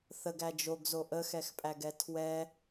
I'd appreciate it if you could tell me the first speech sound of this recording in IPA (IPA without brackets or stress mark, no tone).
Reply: θ